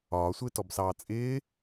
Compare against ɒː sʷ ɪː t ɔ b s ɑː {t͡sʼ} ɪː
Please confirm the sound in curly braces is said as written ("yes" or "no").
yes